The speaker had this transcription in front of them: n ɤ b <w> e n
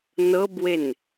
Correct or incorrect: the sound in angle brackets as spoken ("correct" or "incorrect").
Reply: correct